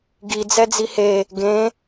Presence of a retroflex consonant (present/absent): absent